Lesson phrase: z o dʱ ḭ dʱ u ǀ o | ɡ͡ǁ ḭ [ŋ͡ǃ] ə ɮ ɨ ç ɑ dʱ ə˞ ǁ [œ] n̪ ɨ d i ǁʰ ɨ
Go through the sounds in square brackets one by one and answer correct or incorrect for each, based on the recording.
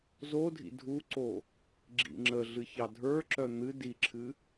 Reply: incorrect: ŋ͡ǁ, correct

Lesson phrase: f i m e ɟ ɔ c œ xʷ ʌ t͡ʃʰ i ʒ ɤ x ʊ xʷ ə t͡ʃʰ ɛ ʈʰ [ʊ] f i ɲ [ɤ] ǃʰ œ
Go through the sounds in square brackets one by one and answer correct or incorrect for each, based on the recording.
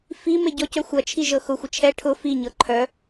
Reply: correct, correct

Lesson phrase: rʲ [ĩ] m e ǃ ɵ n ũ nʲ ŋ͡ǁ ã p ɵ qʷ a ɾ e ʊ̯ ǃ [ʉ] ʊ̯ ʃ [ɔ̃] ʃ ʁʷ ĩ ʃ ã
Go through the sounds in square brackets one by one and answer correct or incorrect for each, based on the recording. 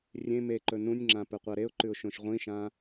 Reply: incorrect: ẽ, correct, incorrect: õ

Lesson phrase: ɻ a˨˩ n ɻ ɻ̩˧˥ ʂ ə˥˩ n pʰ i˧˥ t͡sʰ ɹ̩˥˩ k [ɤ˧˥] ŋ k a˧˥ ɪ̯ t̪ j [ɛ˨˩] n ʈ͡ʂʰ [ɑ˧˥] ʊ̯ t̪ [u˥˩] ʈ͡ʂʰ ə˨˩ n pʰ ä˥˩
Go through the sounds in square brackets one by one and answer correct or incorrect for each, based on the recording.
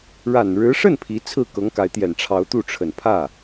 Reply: correct, correct, correct, correct

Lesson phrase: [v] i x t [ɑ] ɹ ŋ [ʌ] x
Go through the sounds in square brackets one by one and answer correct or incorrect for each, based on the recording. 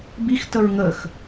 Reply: incorrect: b, incorrect: ə, incorrect: ə

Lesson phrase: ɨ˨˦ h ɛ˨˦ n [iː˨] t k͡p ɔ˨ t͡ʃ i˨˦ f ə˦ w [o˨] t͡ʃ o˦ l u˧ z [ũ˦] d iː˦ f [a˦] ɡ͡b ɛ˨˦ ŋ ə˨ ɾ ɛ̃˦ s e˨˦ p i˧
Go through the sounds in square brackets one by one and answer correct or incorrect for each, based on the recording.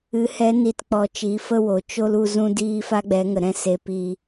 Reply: incorrect: i˨, correct, correct, correct

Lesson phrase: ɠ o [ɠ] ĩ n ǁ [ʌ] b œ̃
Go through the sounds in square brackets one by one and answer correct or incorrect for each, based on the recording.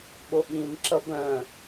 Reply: correct, correct

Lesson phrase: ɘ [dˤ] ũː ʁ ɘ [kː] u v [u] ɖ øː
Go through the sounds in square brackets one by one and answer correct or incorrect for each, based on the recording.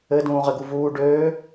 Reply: incorrect: d, incorrect: ɡ, incorrect: uː

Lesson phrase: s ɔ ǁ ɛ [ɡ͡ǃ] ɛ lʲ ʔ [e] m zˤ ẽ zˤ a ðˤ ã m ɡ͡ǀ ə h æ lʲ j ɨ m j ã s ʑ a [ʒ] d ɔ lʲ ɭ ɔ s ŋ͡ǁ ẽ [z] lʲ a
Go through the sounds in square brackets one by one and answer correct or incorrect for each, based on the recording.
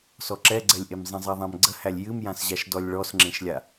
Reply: incorrect: ɡ͡ǀ, correct, incorrect: ʃ, incorrect: ʃ

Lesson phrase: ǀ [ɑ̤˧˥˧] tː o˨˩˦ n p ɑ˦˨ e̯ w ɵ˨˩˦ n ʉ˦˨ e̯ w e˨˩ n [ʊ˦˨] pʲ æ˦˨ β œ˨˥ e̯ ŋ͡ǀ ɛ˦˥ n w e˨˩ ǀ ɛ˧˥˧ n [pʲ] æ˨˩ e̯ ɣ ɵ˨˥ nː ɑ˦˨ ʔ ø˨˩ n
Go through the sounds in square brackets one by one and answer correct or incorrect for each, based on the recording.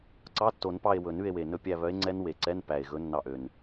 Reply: incorrect: ɑ˧˥˧, incorrect: ɵ˦˨, incorrect: p

